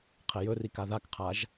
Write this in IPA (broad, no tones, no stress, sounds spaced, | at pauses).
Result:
qʰ ɛ j ɵ r i k a ð a k qʰ a ʒ